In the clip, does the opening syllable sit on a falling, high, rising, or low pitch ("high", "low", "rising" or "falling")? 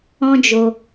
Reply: high